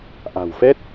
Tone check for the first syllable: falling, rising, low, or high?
low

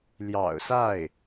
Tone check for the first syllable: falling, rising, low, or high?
low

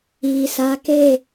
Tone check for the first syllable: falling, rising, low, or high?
low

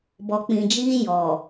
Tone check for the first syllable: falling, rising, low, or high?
low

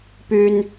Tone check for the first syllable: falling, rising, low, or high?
high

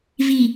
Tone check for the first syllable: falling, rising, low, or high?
low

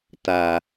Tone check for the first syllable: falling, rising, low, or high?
low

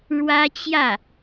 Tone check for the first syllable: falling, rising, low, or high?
high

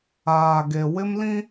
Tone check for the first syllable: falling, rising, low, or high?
low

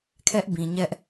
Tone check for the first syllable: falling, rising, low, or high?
high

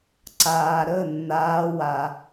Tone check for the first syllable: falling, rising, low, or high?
low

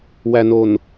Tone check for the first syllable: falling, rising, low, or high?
low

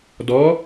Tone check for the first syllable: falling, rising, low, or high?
rising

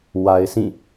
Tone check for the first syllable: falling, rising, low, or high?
low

